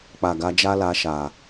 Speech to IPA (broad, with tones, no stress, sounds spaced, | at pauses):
k͡p a˨ ɡ a˨˦ d͡ʒ a˦ l a˧ ʃ a˨